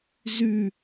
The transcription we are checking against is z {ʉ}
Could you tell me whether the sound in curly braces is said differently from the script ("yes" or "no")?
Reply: no